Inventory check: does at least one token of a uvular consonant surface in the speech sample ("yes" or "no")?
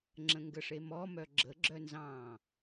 no